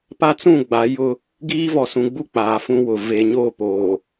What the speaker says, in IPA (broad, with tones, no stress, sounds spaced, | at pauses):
p a˦ t͡s ũ˦˨ ɡ͡b a˨˦ j ʊ˦ | ɡ iː˦ v ɔ˨ s ũ˨ ɡ͡b u˦˨ k͡p aː˨ f ũ˦ w ʊ˨ v e˨ ɲ o˦˨ p oː˨